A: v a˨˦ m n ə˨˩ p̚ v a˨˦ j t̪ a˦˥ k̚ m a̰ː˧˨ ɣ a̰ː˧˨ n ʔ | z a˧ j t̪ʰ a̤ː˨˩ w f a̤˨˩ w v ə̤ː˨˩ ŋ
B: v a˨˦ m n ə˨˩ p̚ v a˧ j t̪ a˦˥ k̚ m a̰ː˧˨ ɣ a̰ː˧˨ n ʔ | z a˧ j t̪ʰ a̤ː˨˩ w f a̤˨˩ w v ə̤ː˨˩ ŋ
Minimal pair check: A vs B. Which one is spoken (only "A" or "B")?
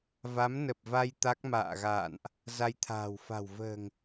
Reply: B